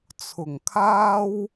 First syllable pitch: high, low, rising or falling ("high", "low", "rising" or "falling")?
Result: low